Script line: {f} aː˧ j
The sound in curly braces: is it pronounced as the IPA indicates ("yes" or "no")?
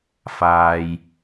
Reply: yes